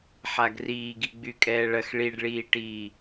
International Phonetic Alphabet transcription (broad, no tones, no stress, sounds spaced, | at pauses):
ħ a ɡ r iː ɡ i ɡ͡b y kʼ ɛː ɭ ɐ x ɭ i ɖ ɭ iː ʈ iː